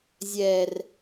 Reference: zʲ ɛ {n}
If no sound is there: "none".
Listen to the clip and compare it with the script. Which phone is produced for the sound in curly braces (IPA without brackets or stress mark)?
r